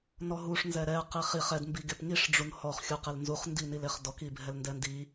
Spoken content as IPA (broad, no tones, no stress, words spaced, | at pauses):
nɔɦuʂ nzɛɾɛ qiχiχ ɛd mbiɡepŋiʂ ɖ͡ʐunhɔχ xʲuqelnzuχ ndinileχdɔk ibʱɛlndɛndi